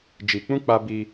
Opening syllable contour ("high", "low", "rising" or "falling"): low